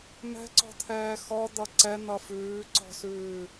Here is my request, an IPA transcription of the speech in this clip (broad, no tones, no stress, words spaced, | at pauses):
mɛ̤ǀɔ̤t̪ʰɛː xɔ d̪ʌǀɛn̪ʌ fʉːǀɔ̤sʉː